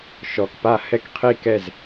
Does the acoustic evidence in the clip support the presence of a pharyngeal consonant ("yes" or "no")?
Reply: no